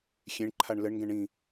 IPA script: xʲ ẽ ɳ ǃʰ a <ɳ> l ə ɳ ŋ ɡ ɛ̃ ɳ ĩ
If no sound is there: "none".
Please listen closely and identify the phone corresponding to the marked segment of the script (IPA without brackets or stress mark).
ɳ